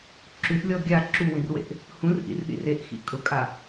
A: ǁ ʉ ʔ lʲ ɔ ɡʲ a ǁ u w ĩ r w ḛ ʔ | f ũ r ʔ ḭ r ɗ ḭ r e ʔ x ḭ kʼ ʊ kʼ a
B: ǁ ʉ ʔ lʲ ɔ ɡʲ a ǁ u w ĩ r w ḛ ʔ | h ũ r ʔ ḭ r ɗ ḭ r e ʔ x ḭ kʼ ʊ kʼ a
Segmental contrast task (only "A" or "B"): B